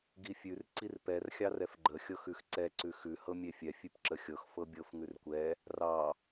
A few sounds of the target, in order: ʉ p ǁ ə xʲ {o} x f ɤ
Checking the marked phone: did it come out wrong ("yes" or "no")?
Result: yes